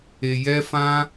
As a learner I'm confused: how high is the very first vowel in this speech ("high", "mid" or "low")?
mid